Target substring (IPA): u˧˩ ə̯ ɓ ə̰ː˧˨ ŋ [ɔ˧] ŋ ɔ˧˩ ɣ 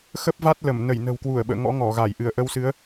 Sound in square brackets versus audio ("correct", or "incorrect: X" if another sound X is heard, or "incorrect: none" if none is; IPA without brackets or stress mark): incorrect: ɔ̰˧˥